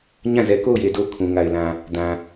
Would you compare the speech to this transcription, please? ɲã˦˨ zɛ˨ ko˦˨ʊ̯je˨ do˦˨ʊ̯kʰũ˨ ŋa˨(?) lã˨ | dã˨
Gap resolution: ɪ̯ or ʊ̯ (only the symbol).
ɪ̯